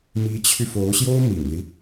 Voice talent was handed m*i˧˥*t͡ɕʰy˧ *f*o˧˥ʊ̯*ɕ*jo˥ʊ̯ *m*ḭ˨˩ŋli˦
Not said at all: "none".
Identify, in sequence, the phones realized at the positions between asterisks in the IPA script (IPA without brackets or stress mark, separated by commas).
i˧˥, f, ɕ, m